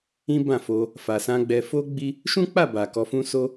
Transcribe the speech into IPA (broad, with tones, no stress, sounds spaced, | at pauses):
ĩ˦ b ã˦˨ f o˧ | f a˧ s ã˦ ɡ͡b ɛ˧ f o˦ ɡ͡b i˧ | ʃ ũ˦ k͡p a˦˨ b a˨ k ɔ˧ f ũ˦ s o˦